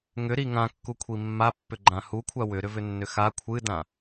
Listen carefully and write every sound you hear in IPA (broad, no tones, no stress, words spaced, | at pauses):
ŋʏɾi ŋãkːukʷʰi mːapːʏɡ͡ǃã hukʷʰa wʏɾʏvʏnːʏ xa kʷʰɨdã